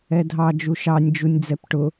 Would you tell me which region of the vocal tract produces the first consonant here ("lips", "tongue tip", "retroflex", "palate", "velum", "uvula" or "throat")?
tongue tip